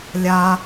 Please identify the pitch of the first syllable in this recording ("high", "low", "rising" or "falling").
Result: high